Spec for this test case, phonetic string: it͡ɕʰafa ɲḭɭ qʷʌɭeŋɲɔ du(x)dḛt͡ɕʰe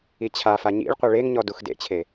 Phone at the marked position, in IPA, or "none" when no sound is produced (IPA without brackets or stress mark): x